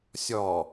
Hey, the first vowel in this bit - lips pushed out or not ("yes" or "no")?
yes